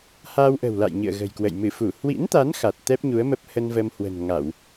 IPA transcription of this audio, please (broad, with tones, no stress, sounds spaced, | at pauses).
h a˧ w ʔ ə̤˨˩ w l a̰˧˨ j ɲ ɨ̰˧˨ ə̯ ɣ ə̤˨˩ j k w ə̰˧˨ j m ɨ˧˩ f u˧˩ h w ḭ˧˥ n t̪ a˨˦ n x a˨˩ t̚ t̪ ɛ˦˥ p̚ ɲ u˨˦ ə̯ m ə˦˥ p̚ h ə˧ n v ə˧ m h w ə̤˨˩ n ŋ a˧˩˨ w